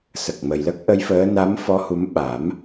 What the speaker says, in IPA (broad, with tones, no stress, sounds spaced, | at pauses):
s ə˨˩ k̚ m ə˨˩ j l ə˦˥ k̚ ʔ ə˧˥ j f əː˧˥ n a˧˥ m f ɔ˧˥ h u˧˥ m ɓ a˨˩˦ m